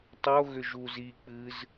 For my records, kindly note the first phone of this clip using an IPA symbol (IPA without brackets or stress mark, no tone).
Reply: tˤ